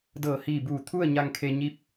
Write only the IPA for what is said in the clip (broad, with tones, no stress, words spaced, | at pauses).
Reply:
dɤː˧˩hiː˧˩buː˧˩ t̪ʰu˥˨ə̯ ɲa˧ŋkʰe˧ ɲi˧˥p̚